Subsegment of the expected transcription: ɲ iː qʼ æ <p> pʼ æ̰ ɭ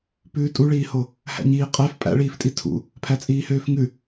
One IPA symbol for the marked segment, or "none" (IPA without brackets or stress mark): f